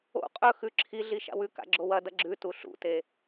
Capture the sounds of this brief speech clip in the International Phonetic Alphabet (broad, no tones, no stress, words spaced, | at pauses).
o̰ qʼɵ xʉǁʰiɮi ʃa̰wʉka̰ ɡ͡ǁowɐdɐ ɡ͡ǁʉ tuɬṵte